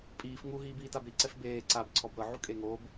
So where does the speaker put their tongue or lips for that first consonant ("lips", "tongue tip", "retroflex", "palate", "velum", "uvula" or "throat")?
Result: lips